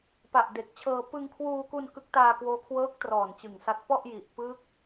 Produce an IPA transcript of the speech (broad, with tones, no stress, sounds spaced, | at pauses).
p a˨˩ ʔ d e˨˩ k̚ t͡ɕʰ ɤː˧ p ɯ˧ ŋ kʰ w uː˧ k u˧ n k ɯ˦˥ k̚ t aː˧ k w oː˦˥ kʰ w ɤː˦˥ k̚ t r ɔː˨˩ n t͡ɕ ɯ˨˩ ŋ s a˦˥ t̚ p ɔ˥˩ ʔ j i˨˩ ʔ p ɯː˦˥ k̚